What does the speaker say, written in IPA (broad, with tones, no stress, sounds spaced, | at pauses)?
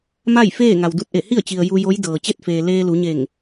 m a˥˨ j f eː˥˨ ŋ a˩ w d u˧ t̚ ʔ e˧˩ h i˥˨ ə̯ t͡ɕ i˩ ə̯ j u˧ j o˧˥ j d ɤː˩ t͡ɕ e˥˨ t̚ f eː˩ l eː˧ l u˩˧ ɲ e˧˩ ŋ